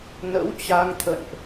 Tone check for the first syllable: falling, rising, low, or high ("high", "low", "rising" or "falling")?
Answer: rising